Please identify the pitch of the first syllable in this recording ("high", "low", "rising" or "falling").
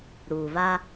low